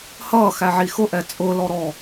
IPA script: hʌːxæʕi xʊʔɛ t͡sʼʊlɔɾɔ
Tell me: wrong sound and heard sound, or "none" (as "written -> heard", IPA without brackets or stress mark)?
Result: none